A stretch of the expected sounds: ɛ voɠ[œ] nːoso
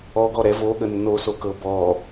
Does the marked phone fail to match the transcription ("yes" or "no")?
yes